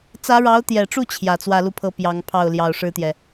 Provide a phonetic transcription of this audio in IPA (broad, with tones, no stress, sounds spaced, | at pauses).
t͡s ä˧˥ ɻ ɑ˧˥ ʊ̯ t̪ j ɛ˨˩ ʈ͡ʂ u˥˩ t͡ɕʰ j ä˨˩ t͡s w ä˥˧ l u˥˩ pʰ ɤ˥ p j ɑ˧˥ ŋ pʰ ɑ˥˩ ʊ̯ l j ɑ˨˩ ʊ̯ ʂ ɻ̩˥ t̪ j ɛ˨